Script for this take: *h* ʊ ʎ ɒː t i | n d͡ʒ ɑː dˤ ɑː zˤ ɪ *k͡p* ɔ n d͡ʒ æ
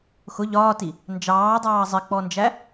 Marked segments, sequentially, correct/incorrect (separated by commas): incorrect, correct